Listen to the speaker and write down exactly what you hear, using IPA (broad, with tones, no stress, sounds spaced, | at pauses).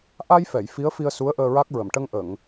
ʔ a˧ j f ɛ˨˩˨ j f i˧˥ ə̯ f i˧ ə̯ s u˧˥ ə̯ ʔ əː˧ ɹ a˦˥ k̚ ɹ ə˨˩˨ m ʈ ə˧ ŋ ʔ ə˨˩˨ ŋ